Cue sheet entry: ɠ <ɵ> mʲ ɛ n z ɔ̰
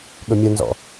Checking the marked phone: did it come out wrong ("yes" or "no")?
no